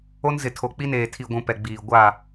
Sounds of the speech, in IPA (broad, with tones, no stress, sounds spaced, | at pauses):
o˦ n z ɪ˨ tʰ o˨ k͡p i˦ n eː˨ tʰ i˨ ɡʷ ũ˨ p ɛ˨ ɡ͡b iː˨ ɡʷ a˦˨